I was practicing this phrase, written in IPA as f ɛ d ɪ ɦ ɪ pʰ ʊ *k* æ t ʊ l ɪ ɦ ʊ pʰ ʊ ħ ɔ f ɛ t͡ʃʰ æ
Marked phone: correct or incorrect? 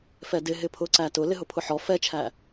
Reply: incorrect